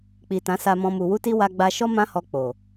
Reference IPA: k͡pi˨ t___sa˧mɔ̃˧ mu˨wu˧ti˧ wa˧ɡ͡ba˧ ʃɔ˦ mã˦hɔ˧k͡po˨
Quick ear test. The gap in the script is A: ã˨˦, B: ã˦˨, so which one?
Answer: A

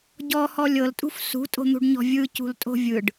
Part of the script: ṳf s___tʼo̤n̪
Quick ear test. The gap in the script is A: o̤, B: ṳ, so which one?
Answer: B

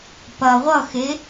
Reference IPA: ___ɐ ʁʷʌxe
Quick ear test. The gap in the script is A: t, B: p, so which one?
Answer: B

